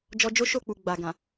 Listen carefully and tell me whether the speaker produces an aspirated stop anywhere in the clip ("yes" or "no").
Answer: no